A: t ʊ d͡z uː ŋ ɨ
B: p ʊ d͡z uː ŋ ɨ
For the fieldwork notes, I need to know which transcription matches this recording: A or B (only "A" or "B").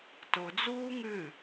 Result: A